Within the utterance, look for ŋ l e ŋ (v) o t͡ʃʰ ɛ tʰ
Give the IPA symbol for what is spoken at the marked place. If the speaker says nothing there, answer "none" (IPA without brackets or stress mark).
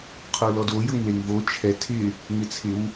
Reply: v